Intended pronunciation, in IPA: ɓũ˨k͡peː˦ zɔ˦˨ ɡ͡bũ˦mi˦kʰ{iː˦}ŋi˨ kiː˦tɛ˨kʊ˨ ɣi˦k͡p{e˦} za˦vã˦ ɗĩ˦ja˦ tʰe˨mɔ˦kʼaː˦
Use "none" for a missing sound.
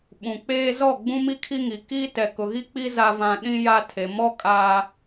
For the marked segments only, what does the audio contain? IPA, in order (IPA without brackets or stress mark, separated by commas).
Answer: i˦, i˦